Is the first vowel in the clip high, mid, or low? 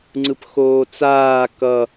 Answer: high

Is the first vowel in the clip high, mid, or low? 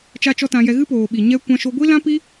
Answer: low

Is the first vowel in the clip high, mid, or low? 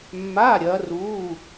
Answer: low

